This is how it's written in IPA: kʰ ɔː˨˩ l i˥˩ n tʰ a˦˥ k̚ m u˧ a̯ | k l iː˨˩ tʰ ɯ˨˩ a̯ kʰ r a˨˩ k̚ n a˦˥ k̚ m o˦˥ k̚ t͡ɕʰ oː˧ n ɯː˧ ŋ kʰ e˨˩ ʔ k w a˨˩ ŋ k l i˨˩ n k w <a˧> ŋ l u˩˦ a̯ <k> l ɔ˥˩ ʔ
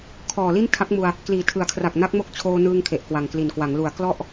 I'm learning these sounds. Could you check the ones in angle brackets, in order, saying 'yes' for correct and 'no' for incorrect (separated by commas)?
no, yes